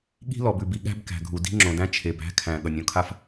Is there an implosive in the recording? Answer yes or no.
yes